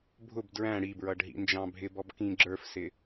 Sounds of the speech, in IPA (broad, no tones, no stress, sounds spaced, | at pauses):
bʱ ʊ b d ɹ æ̃ ɽ i b ɹ ʌ ɖ ɦ ḭ n d͡ʒ ɑ̃ bʱ ɪ b ɔ b k ĩ ɡ͡ǁ ə˞ f s ɪ